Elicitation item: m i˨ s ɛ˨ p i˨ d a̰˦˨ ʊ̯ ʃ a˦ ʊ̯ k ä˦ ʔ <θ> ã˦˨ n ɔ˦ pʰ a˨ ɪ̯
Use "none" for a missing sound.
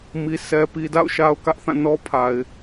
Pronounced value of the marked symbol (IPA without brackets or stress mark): θ